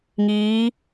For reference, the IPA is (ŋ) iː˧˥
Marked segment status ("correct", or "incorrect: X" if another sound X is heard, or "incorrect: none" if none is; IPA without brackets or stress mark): correct